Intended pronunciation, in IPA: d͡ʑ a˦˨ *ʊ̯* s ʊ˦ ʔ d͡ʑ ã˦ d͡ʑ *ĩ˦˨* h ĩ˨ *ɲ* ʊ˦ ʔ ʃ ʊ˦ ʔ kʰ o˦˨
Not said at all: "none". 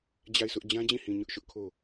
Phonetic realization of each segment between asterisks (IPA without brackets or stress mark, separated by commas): ɪ̯, ĩ˦˨, ɲ